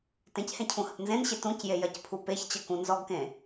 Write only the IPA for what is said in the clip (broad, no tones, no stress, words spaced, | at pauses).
tẽchẽ cʰũhəpnzẽnɕe tũcje jɐcpʰupeçt͡ɕɐ kũnzɔɡkẽ